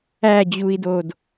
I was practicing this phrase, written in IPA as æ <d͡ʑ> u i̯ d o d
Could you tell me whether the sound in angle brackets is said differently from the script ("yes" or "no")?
no